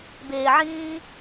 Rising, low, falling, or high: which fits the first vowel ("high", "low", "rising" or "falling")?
low